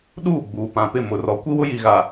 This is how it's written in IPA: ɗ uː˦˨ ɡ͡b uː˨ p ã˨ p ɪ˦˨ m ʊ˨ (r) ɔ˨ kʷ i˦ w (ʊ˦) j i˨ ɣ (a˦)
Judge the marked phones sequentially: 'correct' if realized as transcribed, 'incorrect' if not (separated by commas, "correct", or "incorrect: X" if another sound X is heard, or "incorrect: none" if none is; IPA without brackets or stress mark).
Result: correct, correct, incorrect: a˨